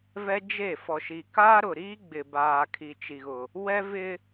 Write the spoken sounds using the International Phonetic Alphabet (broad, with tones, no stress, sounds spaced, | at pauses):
v ɛ˦ d͡ʒ e˦˨ f ɔ˨ ʃ i˨ k aː˦ ɾ ʊ˨ ɾ iː˦ ɡ͡b ɪ˨ b aː˨ kʰ i˨ t͡ʃ i˨ ɣ ʊ˨ | w ɛ˦ v ɪ˦